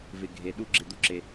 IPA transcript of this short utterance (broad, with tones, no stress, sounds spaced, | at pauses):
v ɪ˧ ɡʱ e˧ ɗ u˦ ɡ͡ǁ ɪ˦˨ d̪ u˦ ǁ e˧